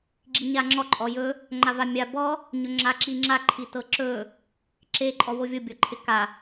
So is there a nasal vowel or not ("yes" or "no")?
no